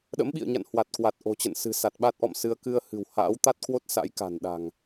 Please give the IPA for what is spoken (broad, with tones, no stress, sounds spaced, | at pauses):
ɗ ə̰˧˥ m ɓ ḭ˧˨ ə̯ ɲ a̰˧˨ n h w a˨˩ t̚ k w a˨˩ t̚ ʔ o̤˨˩ t͡ɕ ə̰˧˨ n s ɨ̤˨˩ s a˨˩ t̚ ɓ a˦˥ t̚ ʔ ɔ̰˧˨ m s ɨ˧ ə̯ k ɨ˧ ə̯ h ɨ̤˨˩ w h a̰ː˧˥ w t̪ a˦˥ t̚ k w o˦˥ t̚ s a̰˧˥ j k a̤˨˩ n ɗ a̤˨˩ ŋ